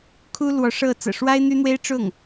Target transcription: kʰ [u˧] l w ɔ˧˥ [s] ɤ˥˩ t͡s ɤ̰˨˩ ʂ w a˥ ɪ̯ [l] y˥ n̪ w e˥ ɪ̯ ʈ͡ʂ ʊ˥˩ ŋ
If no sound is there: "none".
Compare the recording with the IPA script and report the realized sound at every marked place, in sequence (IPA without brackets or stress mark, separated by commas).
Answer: u˥, ʂ, n̪